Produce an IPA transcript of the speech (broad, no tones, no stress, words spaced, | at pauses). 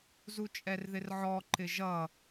zut͡ʃʼɛrðɪrʕɔ ǃɪʒʌ